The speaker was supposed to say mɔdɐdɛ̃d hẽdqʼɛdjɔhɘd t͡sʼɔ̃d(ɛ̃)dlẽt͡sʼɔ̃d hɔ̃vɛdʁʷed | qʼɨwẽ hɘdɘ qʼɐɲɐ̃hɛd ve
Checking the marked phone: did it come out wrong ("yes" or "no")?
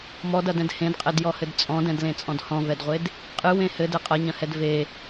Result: no